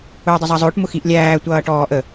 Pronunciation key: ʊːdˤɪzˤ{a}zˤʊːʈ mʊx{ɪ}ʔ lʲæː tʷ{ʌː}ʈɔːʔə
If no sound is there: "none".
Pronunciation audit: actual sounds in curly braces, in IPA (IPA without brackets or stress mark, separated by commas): ɑ, i, ʌː